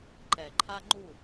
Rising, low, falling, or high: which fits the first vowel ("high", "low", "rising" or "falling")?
low